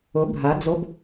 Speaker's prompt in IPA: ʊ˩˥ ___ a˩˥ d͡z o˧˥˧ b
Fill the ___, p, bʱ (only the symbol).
bʱ